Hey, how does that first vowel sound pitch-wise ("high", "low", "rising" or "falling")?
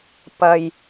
low